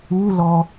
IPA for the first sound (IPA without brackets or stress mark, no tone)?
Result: u